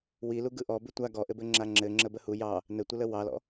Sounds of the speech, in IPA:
w i l u ɡ ɯ ʔ ɔ b ʉ tʷ a ɡ ɔ ʔ ɘ b ɘ ŋ͡ǁ a ŋ͡ǁ ɘ ŋ͡ǁ ə b ə h u j ɑ | n ɘ tʷ ə l ə w ɑ l ɔ̰

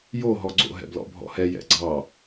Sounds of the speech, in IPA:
j o ɦ ɔ ɡ͡ǀ o̰ ɦ ɛ̰ b l ɔ̰ bʱ ɔ̰ h ɛ j ɛ̰ ɡ͡ǀ ɑ

